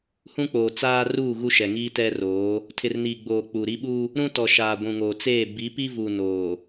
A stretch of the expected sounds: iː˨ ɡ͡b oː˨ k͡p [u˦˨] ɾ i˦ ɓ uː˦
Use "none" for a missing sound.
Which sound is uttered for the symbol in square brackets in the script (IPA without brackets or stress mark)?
u˨